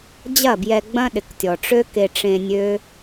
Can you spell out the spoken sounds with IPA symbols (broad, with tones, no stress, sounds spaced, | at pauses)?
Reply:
d͡ʑ ɐ˦˨ b j ɛ˧ ɡ͡b ɐ̃˦ ɗ ɪ˨ k tʲ ɔ˨ ʈ͡ʂ ø˦ k e˧ ʈ͡ʂ ẽ˧ nʲ ø˦